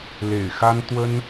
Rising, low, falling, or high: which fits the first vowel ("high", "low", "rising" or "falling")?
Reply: low